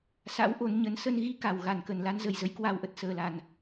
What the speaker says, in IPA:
s a̰˧˥ w ʔ o˨˦ n ɲ ə˨˦ n s ə˧ n ɣ i˧ k a˧˩ w ɣ a˧˩ n k ə˨˩ n l a˨˦ n z ə˨˩ j z ə˨˦ j k w a˨˩ w ʔ ə˨˩ t̚ s əː˨˩ l a˨˩ n

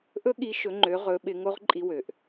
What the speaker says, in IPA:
ʔ ɵ˥ ɠ i˧˥ ʃ ɵ˩˧ ŋ͡ǃ ø˩˧ ʁ ɵ˩˧ ɓ ɪ˩˧ ŋ o˧˥ ʁ ǃʼ i˧ w ø˩ ʔ

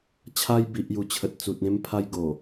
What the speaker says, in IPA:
t͡ɕʰ a˧ j b i˨ ʔ j u˨˩ t͡ɕʰ ə˨ t̚ t͡s u˨ t̚ ẽ˧ m pʰ a˧ j ɡ o˨˩

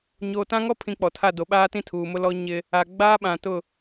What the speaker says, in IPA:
ɲ o˨ t ã˦ ŋ ɔ˦ pʰ ĩ˨ k͡p ɔ˨ tʰ a˦˨ d o˨ ɓ aː˦ t ĩ˦˨ tʰ uː˨ m ʊ˦ l ɔ˦ ɲ ɪ˦ | a˨ ɡ͡b aː˦ ɓ ã˨ t ʊ˦˨

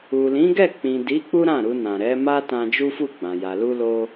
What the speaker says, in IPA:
u˨ l ĩ˨˦ ɡ ɛ˦˨ k͡p ĩ˨ d i˨˦ k͡p u˦ ɾ ã˦˨ ɾ u˧ n ã˨ ɾ ɛ˨˦ m a˦ t ã˧ d͡ʒ u˦ f u˦˨ ɡ͡b ã˨ j a˨ l u˧ l o˧

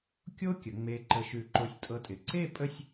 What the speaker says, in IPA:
kʲ o˥ kʲ ə˩˧ ŋ͡m e˧ ǃ ə˧ ʃ ʉ˧˩ ǃ o˧ sʲ tʼ ɤ˧ tʼ ɪ˩˧ ǀ e˥˧ pʼ ə˥˧ sʲ

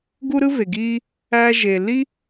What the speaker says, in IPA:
ɡ u˦ ɾ ɯ˦ v e˨ ɡ iː˦ | æ˧ ʒ e˨ l i˦

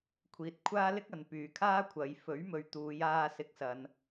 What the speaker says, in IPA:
kʷʰ iː˨ t̚ kʷʰ aː˥ l ɪ˥ k̚ ɐ˨˧ n p yː˨˧ kʰ aː˥ kʷʰ ɐ˨˧ j f ɵ˨˥ ɥ m ɵ˨ ɥ t̪ uː˨˧ j aː˧ s ɪ˨˥ k̚ s ɐ˨˧ n

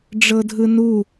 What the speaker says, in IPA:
ɖ͡ʐ ɤ dʱ ɯ n u

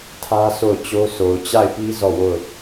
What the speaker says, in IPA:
tʰ ä˦ sʰ o˦˨ ʊ̯ t͡ɕ o˦ s o˨ ʊ̯ t͡ɕ a˦˨ ɪ̯ p i˦ z ɔ˦˨ w o˦˨ ʊ̯

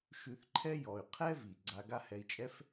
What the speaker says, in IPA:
ʃ ʉ˨ θ ǃʰ ɛ˦ j ɔ˩ y̯ qʰ ɛ˥ v i˩ ɡ͡ǀ a˨ ɡ a˦ h ɛ˨ i̯ t͡ʃʼ ɛ˥ f

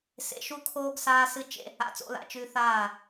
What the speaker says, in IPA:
s ḛ˨ ʃ u˦ kʰ oː˦ ɡ s aː˦ s ɨ˦ t͡ʃ ḛ˦ | a̰˨˦ t͡s o̰˧ l a̰˨ t͡ʃ ʉ˧ θ aː˦˨

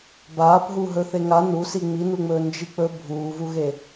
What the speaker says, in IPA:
b aː p ɦ u ɦ ɵ θ e ŋ a n u s i ŋ͡m i n u ŋ͡m ɵː n d͡ʒ i k͡p ɵ bʱ uː v u ɣ e

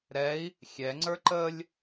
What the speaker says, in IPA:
ɾ ɛ i̯ | xʲ ɛ ŋ͡ǀ ə˞ ǃ ə lʲ

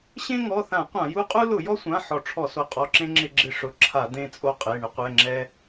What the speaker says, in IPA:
ɕ ẽ˦ ŋ ɔ˩˧˩ θ ã˧˩˧ qʷ ã˧˩˧ j u˦ qʼ u˦ l ʊ˧˩˧ j ɔ˦ sʷ ã˩˧˩ ħ ɔ˧˩˧ ʈ͡ʂʰ ɔ˧˩˧ s o˩˧˩ qʼ ɔ˩˧˩ ǁ ẽ˦ ŋ͡ǁ ɪ˧˩˧ ɡ͡ǁ ɪ˦ ʂ ʊ˩˧˩ ǁʰ a˧˩˧ d̪ ẽ˦ t͡sʼ o˦ qʼ e˩˧˩ ɳ ɪ˦ qʷ ɛ˩˧˩ ŋ͡ǁ ɛ˦

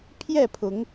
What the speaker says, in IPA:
pʰ j ɛ˥˨ pʰ ʊ˨˦ ŋ

